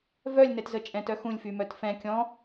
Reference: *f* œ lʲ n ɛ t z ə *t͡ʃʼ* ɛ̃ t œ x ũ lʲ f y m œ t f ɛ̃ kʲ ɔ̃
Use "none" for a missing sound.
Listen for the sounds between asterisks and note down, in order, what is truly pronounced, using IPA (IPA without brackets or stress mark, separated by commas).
v, t͡ʃʼ